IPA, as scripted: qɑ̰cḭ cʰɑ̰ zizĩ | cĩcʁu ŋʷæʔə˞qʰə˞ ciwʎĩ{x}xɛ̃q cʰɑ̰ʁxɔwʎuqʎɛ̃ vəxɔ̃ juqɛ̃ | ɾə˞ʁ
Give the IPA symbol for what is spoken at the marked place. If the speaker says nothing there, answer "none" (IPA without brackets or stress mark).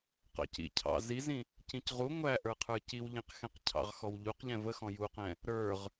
q